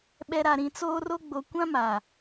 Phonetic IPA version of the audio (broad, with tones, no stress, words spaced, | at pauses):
ɓɛ˨ɾa˨ɾĩ˨ t͡soː˦ro˦ ɡ͡bo˨kʷã˦ma˨